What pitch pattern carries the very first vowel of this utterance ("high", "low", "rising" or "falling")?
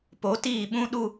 rising